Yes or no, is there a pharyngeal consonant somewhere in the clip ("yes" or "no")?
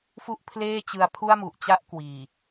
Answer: no